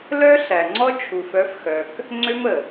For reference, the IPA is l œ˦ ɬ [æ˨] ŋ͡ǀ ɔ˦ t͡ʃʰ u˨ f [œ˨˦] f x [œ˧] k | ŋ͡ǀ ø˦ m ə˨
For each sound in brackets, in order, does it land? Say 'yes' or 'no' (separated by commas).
yes, yes, no